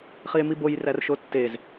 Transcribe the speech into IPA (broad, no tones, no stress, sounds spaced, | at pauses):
χ i e̯ m i b o j r æ r ʃ o tː e z